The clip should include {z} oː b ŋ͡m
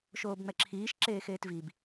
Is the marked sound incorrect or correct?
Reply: incorrect: ʃ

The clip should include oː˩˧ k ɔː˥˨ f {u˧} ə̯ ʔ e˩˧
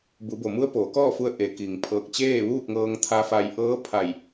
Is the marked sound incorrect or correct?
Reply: correct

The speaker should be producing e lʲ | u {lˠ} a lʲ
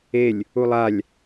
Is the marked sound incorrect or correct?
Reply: correct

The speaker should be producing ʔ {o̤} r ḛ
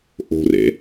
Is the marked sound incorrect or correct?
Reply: correct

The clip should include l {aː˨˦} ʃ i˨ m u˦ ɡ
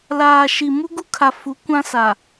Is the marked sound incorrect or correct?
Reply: incorrect: aː˨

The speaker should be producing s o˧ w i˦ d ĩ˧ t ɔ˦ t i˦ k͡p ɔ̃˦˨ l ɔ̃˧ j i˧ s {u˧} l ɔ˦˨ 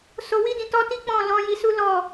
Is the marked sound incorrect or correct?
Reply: incorrect: u˦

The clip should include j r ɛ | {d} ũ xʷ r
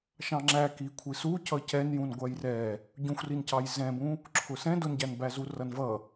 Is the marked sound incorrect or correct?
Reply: incorrect: ɟ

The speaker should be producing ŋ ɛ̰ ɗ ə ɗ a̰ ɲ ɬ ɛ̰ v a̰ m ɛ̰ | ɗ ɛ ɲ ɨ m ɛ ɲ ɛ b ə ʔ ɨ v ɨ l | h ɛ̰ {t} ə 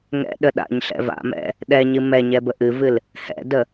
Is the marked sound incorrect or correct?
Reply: incorrect: d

